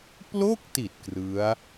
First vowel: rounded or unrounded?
rounded